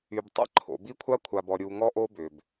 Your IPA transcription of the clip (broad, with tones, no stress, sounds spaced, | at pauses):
y˨ b tˤ ɛ̰˦ ǃʰ o̰˨ b i˦ kʷʰ a˦ kʷʰ a˨ b ɔ˨ ɾʲ u˨ ŋ ɔ˦ ʔ o˦ b ʏ˨ b